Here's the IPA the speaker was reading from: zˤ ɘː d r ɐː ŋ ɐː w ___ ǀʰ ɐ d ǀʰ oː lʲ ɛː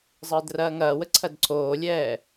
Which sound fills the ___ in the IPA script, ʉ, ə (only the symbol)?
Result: ə